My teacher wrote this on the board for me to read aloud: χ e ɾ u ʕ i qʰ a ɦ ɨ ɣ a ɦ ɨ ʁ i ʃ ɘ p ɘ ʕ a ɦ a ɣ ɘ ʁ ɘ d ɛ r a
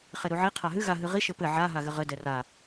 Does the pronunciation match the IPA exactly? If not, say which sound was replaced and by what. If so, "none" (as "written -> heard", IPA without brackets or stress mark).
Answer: none